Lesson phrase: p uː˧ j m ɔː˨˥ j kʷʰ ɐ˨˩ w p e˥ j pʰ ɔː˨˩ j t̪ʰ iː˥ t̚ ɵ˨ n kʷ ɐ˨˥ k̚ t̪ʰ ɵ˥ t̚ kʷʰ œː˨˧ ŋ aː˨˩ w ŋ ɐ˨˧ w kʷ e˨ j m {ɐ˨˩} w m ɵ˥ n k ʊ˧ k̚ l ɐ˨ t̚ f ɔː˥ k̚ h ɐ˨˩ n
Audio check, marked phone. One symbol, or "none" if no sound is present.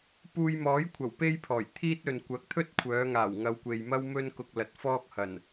ɐ˥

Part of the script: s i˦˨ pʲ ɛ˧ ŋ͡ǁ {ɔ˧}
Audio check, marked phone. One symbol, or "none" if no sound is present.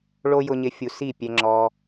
ɔ˧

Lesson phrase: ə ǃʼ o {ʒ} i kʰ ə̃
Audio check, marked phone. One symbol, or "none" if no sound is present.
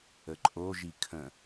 ʒ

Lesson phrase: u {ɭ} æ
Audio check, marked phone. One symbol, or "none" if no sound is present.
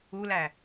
l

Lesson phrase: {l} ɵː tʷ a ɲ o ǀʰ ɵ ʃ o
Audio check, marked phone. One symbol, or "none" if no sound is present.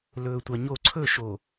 l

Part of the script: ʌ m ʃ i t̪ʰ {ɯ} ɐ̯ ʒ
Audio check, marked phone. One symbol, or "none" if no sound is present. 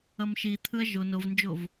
ɯ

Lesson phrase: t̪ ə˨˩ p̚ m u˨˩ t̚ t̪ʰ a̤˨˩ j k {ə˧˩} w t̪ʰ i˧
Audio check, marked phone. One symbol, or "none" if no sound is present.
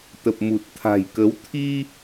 ə˨˦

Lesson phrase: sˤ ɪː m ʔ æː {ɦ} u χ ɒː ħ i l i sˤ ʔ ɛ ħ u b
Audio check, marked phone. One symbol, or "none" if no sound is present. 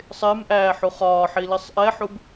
ħ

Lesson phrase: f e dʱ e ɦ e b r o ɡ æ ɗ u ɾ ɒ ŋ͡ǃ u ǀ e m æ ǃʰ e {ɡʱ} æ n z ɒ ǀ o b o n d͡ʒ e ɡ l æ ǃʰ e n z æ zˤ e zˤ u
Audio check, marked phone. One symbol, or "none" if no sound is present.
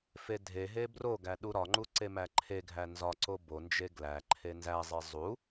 ɡʱ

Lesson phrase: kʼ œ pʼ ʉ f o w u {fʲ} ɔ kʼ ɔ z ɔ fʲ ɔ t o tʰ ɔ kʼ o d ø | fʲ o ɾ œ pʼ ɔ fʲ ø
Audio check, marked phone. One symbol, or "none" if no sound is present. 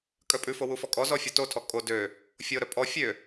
f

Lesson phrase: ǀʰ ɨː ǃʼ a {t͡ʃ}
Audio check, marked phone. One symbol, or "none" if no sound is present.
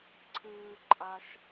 ʃ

